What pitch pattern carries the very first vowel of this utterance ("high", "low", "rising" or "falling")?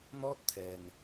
high